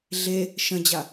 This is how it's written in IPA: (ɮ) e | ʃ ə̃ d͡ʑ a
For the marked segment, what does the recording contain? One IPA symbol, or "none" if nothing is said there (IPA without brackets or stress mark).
ɮ